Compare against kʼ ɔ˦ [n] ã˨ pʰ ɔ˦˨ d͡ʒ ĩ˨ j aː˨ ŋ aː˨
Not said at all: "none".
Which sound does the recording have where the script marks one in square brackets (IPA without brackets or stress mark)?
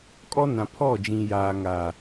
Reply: n